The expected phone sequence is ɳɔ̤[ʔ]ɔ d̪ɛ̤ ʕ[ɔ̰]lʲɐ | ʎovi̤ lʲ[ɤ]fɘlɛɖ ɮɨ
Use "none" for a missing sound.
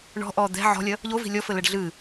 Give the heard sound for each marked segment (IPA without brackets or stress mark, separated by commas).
ʔ, ɔ̤, ɔ